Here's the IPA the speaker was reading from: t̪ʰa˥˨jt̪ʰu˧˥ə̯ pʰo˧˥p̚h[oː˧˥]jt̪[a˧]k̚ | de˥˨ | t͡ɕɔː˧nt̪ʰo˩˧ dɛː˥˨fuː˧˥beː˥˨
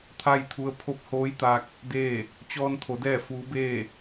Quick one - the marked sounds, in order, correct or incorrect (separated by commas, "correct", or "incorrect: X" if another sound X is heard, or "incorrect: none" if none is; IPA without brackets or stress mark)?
correct, correct